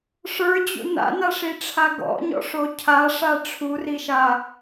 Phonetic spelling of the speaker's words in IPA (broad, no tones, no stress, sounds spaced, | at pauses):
ʂ ə˞ d͡ʑ ṵ n a̰ n a ʂ i ʈ͡ʂʰ a ɡ ɔ̰ ɲ ɔ̰ ʂ o cʰ a ʂ a ʈ͡ʂʰ u r i ʃ a